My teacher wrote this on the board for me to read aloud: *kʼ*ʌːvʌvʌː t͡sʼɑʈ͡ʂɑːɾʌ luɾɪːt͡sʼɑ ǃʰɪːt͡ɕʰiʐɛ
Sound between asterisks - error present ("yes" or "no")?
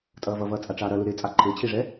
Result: yes